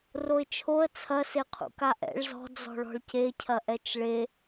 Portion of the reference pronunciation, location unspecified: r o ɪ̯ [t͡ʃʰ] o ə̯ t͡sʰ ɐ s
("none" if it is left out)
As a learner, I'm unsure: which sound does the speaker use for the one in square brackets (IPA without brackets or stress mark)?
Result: t͡ʃʰ